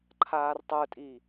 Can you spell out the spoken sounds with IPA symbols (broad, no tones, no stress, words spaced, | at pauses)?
ǃʰaːrtˤə˞tʼi